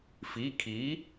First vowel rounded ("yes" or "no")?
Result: no